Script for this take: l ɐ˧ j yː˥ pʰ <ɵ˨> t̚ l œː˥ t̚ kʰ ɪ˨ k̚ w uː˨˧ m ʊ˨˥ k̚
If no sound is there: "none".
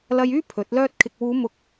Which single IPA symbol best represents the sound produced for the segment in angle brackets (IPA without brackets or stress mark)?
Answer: ɵ˨˥